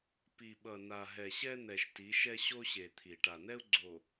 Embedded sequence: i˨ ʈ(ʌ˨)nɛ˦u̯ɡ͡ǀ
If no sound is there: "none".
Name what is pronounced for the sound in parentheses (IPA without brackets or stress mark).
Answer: a˨